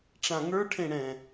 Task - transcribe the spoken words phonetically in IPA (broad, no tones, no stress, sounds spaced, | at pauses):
ʈ͡ʂ ã ŋ ə˞ ʈʰ ẽ ɽ ɛ̃